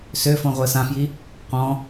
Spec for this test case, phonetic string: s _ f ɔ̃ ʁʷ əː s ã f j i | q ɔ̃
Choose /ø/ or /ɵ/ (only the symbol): ø